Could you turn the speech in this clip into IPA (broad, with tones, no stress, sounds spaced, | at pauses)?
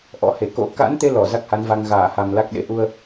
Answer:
ʔ ɔ̰˧˥ h e˧˩ k o̰˧˥ k a̰˧˥ n t̪ e˧ l ɔ˧˩ z a˦˥ k̚ h a˨˦ n v a˧ ŋ ɣ aː˧˩ h a˨˩ m l a˦˥ k̚ ɗ ḛ˧˥ ʔ u˧ ə̯